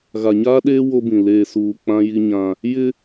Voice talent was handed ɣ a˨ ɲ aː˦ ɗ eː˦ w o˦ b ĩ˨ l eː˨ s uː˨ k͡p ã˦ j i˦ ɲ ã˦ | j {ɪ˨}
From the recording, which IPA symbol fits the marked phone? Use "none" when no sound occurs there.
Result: ɪ˦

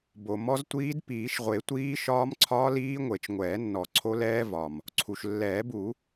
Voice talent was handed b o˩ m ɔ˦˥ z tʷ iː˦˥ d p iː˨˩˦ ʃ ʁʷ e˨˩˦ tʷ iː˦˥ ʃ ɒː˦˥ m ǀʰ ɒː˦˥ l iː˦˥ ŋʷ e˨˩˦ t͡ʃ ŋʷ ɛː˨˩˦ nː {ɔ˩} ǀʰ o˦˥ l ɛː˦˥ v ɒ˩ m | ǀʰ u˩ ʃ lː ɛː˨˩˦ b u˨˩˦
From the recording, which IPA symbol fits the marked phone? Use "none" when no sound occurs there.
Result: ɔ˨˩˦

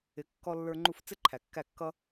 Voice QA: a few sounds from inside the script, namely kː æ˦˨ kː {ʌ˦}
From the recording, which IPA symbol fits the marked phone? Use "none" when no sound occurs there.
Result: ʌ˦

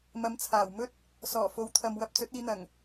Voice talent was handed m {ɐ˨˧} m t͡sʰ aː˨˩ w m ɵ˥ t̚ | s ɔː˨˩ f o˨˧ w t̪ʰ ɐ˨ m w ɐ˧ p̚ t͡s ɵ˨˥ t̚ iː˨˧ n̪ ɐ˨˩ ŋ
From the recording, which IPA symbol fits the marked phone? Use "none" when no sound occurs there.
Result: ɐ˨˧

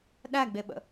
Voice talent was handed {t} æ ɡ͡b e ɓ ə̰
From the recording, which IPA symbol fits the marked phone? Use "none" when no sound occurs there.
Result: ɗ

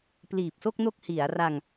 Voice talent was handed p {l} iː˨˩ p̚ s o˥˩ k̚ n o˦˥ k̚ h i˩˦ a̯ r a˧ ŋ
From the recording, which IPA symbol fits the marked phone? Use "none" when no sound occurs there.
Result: l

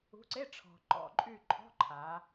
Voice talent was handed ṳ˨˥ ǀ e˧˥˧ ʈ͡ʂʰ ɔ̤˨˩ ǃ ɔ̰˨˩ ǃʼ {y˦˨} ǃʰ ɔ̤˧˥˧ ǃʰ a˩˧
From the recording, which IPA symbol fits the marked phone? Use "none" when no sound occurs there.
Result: y˦˨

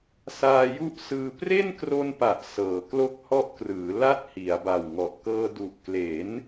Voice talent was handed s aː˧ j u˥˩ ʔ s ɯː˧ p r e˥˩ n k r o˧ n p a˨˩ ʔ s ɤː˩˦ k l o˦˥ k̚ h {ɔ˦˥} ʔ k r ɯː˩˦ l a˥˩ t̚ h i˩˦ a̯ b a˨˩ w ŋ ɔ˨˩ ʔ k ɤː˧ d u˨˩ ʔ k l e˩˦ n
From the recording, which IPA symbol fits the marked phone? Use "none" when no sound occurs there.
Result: ɔ˦˥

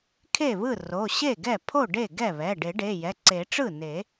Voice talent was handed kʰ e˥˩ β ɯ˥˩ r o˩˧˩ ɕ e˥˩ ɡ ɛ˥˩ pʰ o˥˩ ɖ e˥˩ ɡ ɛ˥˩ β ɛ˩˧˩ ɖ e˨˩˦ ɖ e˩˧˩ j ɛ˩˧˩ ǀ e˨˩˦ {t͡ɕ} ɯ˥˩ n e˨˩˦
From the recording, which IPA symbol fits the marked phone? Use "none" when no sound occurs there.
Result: ʈ͡ʂ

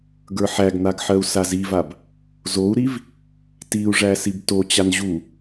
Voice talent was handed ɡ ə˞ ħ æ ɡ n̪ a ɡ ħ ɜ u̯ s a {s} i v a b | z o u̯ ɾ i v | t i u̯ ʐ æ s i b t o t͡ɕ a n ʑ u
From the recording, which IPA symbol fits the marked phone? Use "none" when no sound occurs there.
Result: z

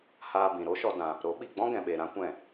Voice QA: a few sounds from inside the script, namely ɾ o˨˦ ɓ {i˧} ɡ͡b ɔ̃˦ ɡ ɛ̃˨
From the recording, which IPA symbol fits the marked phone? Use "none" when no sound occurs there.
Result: i˨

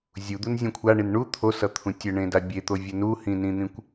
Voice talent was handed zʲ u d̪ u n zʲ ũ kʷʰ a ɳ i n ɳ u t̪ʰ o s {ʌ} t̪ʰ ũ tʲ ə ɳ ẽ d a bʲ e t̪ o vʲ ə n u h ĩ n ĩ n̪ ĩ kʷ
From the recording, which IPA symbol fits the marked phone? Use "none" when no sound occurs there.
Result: ʌ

